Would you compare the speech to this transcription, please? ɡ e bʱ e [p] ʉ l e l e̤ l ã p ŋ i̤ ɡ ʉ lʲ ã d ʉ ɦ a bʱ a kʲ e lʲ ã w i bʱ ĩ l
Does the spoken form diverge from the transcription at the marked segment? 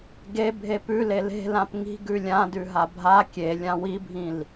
no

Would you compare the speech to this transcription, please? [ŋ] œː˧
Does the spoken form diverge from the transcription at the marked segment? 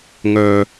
no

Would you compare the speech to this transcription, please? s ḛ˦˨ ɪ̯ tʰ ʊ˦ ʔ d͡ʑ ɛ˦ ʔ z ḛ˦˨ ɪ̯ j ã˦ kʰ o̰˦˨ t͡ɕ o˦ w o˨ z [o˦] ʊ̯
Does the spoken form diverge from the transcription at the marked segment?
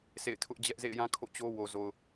yes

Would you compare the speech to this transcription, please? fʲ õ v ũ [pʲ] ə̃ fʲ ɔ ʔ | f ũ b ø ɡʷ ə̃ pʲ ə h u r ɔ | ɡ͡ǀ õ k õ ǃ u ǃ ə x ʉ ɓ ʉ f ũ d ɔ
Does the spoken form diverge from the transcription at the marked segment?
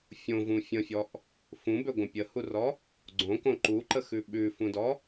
yes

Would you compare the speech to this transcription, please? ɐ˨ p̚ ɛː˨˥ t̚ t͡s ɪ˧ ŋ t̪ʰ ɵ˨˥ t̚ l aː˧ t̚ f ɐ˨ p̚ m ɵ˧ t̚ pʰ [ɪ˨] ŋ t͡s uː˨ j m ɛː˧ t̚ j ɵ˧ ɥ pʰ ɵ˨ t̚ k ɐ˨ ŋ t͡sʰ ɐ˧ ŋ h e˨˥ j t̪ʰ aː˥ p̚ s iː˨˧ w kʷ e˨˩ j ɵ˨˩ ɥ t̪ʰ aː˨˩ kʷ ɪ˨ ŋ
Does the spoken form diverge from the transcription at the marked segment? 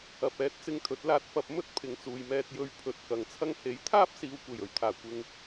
no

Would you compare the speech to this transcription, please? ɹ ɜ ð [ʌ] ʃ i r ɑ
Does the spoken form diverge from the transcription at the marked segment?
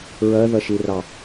no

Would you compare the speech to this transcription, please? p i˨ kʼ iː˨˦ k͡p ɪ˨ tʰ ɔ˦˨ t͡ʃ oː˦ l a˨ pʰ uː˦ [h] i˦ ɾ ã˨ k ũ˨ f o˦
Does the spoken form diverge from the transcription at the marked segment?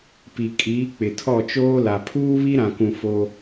yes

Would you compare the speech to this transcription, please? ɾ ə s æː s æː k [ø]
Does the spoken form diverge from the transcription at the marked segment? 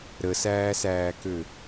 no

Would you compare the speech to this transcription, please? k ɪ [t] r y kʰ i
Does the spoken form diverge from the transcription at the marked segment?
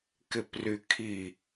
yes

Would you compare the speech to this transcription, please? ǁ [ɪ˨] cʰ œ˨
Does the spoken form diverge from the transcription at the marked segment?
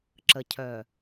yes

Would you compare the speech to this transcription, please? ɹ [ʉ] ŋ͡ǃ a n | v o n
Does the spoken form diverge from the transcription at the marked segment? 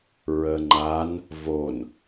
yes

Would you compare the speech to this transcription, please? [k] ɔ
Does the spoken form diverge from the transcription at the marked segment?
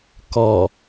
no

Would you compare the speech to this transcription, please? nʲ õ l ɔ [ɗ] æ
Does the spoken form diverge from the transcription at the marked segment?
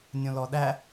no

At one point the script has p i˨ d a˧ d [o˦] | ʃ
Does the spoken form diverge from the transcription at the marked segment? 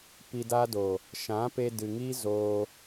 yes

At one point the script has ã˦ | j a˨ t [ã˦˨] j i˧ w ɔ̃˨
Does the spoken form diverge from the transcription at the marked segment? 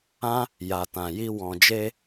yes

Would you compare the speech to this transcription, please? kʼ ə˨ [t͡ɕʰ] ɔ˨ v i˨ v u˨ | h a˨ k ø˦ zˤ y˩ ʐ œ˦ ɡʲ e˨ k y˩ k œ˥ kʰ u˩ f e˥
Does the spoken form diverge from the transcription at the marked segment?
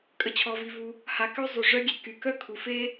no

